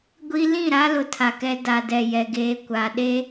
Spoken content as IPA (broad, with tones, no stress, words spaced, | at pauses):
ɡʷi˦ lĩ˦˨ɾa˦ lʊ˦tʰa˨kɛ˦ da˨dɛ˨jɛ˨ ɡeː˦kʷa˨ ɗe˦